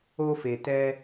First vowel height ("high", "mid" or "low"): mid